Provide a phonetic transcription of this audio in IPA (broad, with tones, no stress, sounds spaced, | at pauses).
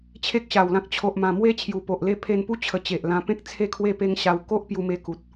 t͡ɕʰ e˦ k̚ ɕ a˨˩ w l ã˦ k̚ t͡ɕʰ o˨ ʔ m ã˨˩ m w e˦ t͡ɕʰ j u˨˩ p o˨ ʔ l e˥˧ pʰ e˧ n p u˦ t͡ɕʰ ə˧ t͡ɕ e˨ ʔ l ã˧ p ẽ˦ k̚ t͡sʰ e˦ kʰ w e˥˧ p e˦ ŋ ɕ a˧ w k o˦ ʔ p j u˧ m e˧ k u˨ t̚